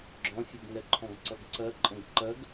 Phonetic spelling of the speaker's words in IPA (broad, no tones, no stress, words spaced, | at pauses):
ɡ͡ǁɔ̃fʲuɡŋɛ ǃʰɔ̃ɡǀʌɡǀɜǃʼə̃ɡ ǃɜɡ